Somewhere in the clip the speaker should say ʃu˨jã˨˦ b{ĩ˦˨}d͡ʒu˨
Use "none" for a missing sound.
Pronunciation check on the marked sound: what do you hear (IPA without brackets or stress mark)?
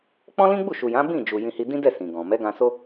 ĩ˦˨